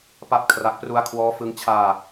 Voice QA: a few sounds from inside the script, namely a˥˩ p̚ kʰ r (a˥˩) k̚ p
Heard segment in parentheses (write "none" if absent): a˦˥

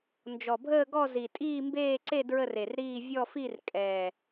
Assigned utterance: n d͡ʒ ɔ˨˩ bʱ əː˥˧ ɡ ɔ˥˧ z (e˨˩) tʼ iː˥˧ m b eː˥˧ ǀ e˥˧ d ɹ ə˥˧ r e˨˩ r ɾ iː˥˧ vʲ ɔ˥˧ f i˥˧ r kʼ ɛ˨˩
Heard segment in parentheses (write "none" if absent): i˨˩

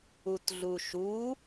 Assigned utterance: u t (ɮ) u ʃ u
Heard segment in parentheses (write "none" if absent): ɮ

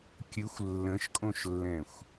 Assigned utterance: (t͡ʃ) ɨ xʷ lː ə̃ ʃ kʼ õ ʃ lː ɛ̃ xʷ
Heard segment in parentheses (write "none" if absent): kʲ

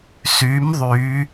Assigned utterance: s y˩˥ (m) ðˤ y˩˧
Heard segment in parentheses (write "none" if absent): m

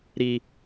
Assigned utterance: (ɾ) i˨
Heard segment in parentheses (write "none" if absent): ɾ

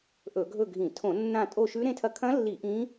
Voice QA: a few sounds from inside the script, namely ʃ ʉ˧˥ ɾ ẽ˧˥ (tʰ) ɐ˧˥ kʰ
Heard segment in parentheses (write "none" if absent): tʰ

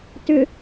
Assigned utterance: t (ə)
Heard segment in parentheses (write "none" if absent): ʏ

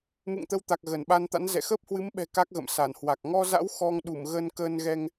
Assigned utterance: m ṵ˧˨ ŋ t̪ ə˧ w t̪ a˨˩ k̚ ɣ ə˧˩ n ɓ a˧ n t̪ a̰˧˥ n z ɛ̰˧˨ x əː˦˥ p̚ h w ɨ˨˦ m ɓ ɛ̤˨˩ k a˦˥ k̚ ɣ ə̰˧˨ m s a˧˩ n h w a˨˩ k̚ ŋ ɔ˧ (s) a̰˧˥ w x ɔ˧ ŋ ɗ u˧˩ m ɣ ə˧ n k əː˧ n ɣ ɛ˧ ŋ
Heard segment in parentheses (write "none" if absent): z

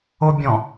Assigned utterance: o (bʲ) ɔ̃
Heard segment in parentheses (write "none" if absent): bʲ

